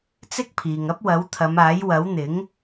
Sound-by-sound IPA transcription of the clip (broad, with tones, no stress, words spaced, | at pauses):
t͡sɪ˥k̚pʰiː˨ŋɐ˥p̚ wɐ˨˥wt̪ʰɐ˨˧maː˨˥j wɐ˨˥wn̪ɪ˨˥ŋ